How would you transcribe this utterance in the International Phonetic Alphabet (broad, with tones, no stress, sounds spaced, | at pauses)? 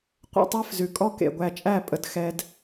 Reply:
qʷ ḛ˥˧ tˤ æ˥ f z ʉ˩˧ kʼ ɔ˥ k ḛ˧˩ ɡʷ æ˧˩ t͡ʃʼ æ˥˧ pʼ ə˩˧ d x ɛ˧ d